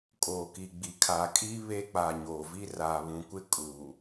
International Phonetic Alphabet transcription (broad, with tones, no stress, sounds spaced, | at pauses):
kʼ oː˨ k i˨ ɡ͡b i˨ kʰ a˨ kʼ i˦ β e˦ k͡p a˨ ɲ oː˨ v i˦ r aː˨ β ũ˨ kʷ ɪ˦ kʼ uː˨